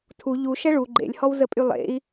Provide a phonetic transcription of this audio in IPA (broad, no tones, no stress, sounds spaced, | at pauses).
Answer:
tʰ u ʎ u ʃ ɛ ɭ u ɡ͡ǃ ḛ lʲ h ɔ w z ə pʼ y lˠ ḛ i̯